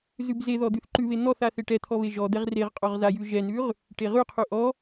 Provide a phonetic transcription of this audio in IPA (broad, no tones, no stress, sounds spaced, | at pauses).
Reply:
z ʉ b z e ð ɔ d̪ ʉ θ ǃ ʉ β e n̪ ɔ θ a θ e ʈ ɛ t̪ʰ ɔ β e ʒ ɔ d̪ ɛ ʁ r e ʁ qʼ ɔ ʁ z a j ʉ ʒ ɛ n ʉ ʁ | ʈ e ʁ ʉ qʰ ʉ ʔ ɔ